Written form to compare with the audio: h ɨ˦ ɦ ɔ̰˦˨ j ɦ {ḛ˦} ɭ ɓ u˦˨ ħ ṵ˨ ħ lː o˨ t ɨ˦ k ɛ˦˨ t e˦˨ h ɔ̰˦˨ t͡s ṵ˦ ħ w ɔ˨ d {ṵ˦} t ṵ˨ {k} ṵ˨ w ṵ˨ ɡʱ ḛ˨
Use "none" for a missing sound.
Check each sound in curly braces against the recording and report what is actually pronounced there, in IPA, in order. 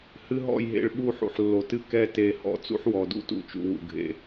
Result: ḛ˦˨, ṵ˦, t͡ʃ

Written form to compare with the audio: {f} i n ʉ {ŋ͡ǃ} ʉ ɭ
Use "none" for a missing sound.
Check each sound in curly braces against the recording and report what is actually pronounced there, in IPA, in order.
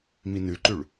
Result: m, ǃ

